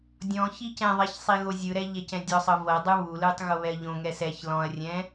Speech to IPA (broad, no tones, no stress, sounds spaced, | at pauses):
dʲ ɔ̃ ç i c ɛ̃ ðˤ ɛ ç sˤ i ɣ o zʲ ɯ ɾ ɛ ʎ ɛ c ɛ̃ dʲ ɔ sˤ ɤ v ɤ dˤ ɯ β u l ɯ tˤ ɣ o β ɛ ɐ̯ ʎ õ ŋ ɛ s ɛ ç l ɔ̃ ɐ̯ rʲ ɛ̃